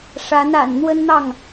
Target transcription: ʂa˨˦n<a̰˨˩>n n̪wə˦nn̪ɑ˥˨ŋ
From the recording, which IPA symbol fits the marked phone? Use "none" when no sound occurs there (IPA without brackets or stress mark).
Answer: a̰˨˩